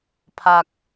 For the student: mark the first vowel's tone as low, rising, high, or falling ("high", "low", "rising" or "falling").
low